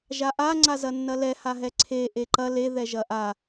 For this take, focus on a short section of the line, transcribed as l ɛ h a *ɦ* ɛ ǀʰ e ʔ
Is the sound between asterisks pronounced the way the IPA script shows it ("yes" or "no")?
yes